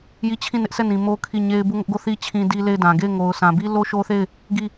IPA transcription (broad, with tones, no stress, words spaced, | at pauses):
ji˦˨ t͡ɕʰĩ˦˨nɪ˦ʔsʰɛ˦˨nĩ˨ mo˦kʰi˦˨ɲe˦ɪ̯ bu˦˨ŋʊ˦ʔɡo˦˨θi˦ t͡ɕʰĩ˦di˦le˦˨ɪ̯dã˨ ɡe˦˨ɪ̯ŋo˨ʊ̯sʰã˨bi˦ lo˦ʃo˦θe˦˨ɪ̯ | ɡi˦˨